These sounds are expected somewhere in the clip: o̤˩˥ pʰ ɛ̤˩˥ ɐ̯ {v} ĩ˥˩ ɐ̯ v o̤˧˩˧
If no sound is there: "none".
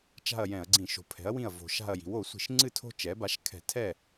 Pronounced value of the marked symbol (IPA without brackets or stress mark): w